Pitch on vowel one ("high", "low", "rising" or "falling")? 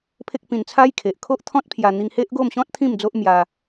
high